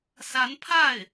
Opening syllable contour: rising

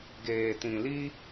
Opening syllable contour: low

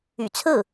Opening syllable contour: low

